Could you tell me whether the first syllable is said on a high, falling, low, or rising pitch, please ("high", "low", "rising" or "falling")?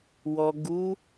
low